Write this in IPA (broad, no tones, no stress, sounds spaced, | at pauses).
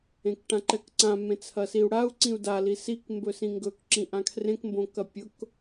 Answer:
ẽ k ʈ ã ǃ ɛ k ǀ ã m ẽ t͡sʰ ɐ s i u̯ ɽ a u̯ ǀ ĩ u̯ d a l i s i k m b ɵ s ĩ ŋ ɡ ɵ k ǁ ĩ ʔ ã kʰ r ẽ k m b õ k ɐ pʲ ʊ k